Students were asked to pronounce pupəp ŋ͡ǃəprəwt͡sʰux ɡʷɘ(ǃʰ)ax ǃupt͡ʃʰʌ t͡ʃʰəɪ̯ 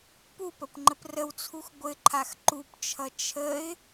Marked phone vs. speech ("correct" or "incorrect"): correct